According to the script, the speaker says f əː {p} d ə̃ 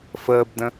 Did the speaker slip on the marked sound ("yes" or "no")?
yes